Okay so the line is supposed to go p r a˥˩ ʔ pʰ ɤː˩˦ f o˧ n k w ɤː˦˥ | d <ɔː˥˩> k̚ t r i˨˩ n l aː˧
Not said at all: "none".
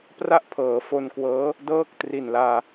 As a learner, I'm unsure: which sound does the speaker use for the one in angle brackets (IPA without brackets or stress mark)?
ɤː˥˩